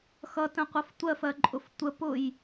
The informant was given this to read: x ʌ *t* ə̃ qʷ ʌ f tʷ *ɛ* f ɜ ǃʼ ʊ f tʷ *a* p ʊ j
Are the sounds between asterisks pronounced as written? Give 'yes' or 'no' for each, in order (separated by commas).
yes, no, no